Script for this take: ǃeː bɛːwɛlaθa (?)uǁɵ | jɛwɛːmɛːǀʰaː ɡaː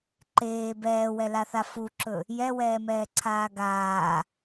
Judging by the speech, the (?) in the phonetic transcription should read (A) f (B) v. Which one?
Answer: A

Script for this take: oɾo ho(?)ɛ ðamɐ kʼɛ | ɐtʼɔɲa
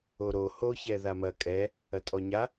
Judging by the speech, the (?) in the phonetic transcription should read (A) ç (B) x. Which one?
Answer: A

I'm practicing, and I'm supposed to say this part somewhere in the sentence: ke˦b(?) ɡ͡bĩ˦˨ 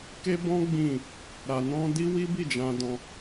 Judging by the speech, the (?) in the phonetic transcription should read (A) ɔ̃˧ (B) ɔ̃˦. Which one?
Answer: B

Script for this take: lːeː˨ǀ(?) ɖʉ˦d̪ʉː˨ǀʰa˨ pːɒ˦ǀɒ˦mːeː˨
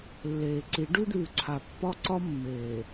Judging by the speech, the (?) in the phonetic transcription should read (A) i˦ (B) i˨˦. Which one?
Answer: B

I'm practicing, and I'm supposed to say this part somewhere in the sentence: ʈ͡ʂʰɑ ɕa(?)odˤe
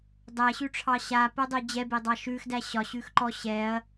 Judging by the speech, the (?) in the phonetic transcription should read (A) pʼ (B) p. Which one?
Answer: B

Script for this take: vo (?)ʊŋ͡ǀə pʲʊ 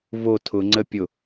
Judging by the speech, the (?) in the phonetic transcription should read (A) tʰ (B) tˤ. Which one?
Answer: A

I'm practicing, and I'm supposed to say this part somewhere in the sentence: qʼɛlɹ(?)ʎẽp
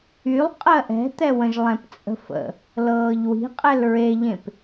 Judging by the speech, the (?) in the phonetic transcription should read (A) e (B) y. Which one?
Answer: A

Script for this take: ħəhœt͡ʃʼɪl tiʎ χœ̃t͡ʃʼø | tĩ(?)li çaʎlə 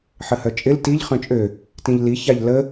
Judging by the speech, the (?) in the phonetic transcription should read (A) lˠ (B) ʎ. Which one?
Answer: B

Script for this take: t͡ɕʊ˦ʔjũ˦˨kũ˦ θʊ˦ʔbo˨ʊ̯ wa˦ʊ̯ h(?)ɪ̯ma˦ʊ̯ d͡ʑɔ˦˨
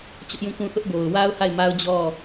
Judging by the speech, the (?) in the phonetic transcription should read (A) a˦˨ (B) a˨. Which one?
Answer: A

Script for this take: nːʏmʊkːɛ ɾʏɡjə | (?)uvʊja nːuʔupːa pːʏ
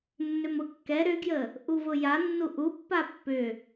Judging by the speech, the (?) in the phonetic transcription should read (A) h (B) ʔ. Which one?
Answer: B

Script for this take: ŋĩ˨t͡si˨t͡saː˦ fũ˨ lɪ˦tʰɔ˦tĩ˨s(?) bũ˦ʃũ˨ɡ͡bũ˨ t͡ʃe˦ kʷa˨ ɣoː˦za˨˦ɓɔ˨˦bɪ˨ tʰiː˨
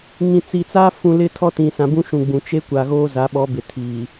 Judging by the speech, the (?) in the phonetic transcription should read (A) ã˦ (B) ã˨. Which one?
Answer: B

